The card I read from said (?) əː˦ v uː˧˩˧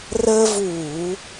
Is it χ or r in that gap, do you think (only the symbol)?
r